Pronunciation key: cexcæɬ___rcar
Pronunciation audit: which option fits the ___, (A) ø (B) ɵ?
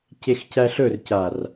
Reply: B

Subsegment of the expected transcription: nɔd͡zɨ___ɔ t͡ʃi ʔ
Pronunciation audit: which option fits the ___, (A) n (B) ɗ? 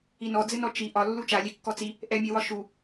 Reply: A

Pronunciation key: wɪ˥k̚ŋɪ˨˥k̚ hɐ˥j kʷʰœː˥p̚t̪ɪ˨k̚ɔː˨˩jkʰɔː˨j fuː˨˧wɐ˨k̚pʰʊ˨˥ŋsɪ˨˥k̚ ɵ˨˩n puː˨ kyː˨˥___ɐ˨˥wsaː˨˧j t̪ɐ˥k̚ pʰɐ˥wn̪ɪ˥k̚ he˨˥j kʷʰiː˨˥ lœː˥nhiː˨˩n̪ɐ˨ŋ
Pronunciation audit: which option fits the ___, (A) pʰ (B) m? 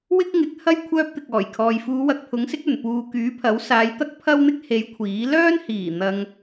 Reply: A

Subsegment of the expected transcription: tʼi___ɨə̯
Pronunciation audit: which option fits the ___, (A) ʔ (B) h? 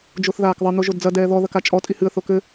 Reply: B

